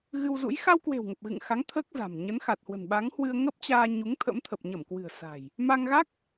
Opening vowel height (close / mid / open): close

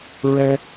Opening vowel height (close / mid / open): mid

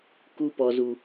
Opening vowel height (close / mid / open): close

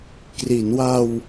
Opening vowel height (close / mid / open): close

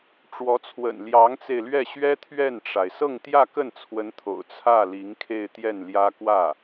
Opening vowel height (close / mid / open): mid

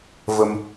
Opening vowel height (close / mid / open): mid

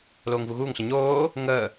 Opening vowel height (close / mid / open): mid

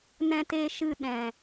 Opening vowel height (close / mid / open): mid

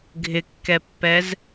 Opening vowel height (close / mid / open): close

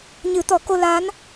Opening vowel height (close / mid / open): close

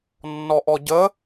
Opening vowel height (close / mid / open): mid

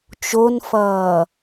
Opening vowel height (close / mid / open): mid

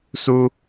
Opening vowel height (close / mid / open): close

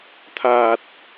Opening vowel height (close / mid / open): open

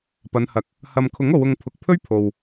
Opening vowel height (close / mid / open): open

